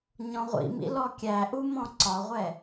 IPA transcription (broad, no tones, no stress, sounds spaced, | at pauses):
ɲ ɔ̃ ʁʷ ḭ m ḭ l ɔ kʲ æ ʔ u m ɔ̃ ǀ ɒ ʁʷ ɛ